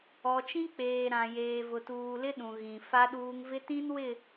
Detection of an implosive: present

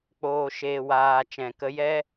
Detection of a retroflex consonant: absent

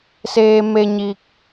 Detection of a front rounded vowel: absent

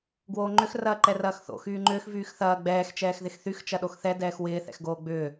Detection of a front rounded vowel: present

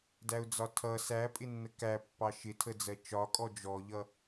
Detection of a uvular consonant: absent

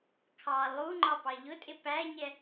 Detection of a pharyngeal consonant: absent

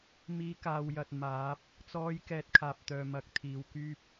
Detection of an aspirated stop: present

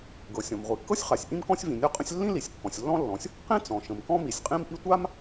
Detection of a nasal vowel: present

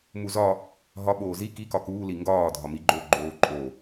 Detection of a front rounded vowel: absent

